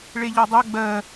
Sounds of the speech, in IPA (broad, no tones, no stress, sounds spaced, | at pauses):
ɭ e ʎ ɒ dˤ ɜ ɡ͡b ɜ